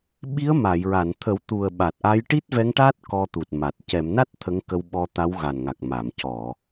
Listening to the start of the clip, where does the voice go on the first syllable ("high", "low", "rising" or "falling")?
rising